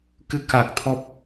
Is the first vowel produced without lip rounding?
yes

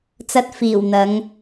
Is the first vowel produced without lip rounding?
yes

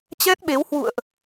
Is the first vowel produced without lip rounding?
yes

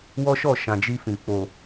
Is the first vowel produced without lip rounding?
no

